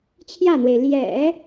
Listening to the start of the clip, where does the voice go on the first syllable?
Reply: falling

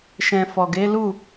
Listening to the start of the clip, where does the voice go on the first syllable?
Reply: low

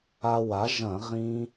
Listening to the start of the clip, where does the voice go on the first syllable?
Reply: high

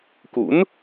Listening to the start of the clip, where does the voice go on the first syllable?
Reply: rising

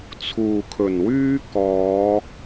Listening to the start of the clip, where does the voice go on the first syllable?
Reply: low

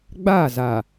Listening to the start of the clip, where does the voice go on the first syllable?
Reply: falling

